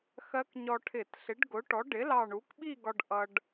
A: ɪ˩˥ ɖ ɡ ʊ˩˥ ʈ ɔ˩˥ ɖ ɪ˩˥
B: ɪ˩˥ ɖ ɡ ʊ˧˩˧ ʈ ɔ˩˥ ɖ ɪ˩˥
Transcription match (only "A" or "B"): A